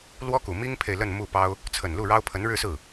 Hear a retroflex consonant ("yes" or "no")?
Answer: yes